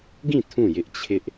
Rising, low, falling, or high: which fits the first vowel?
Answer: falling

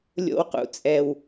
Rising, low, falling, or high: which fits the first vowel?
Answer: low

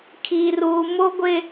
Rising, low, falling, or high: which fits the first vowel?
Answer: high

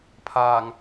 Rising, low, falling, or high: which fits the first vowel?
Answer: low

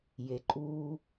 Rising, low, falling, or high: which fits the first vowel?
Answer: low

